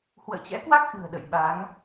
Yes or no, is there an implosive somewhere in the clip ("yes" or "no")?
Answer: yes